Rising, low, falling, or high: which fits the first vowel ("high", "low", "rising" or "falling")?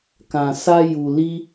low